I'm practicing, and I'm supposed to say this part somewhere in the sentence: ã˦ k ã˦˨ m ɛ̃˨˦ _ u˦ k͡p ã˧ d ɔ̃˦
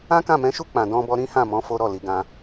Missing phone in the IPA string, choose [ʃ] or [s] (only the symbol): ʃ